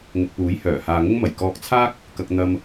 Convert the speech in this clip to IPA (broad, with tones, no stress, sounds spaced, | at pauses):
ŋ ʊ˨ k̚ p uː˨˥ j h œː˨˩ h aː˨ ŋ ʊ˧ ŋ m ɐ˨˩ j k ɔː˧ k̚ t͡sʰ aː˥ k̚ | k ɐ˧ k̚ n̪ ɐ˧ m